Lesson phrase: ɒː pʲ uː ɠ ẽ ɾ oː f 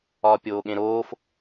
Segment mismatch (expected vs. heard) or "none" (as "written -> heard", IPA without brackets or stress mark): uː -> oː